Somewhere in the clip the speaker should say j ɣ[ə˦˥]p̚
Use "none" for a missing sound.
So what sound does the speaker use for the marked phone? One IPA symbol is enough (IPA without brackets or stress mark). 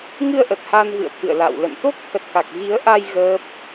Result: əː˦˥